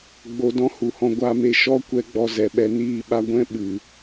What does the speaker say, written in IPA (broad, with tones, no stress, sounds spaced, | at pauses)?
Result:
ɡ͡b o˧ d ɔ̃˦ h u˨ h ɔ̃˧ ɡʷ a˧ m e˧ ʃ ɔ˦ kʷ ɛ˧ ɡ͡b ɔ˧ z ɛ˨ ɓ ɛ˧ n iː˧ ɓ a˧ ɡʷ ɛ̃˦ ɓ ɨ˨